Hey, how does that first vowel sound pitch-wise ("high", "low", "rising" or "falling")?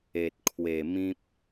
low